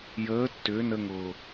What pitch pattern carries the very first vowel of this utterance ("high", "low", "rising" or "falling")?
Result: rising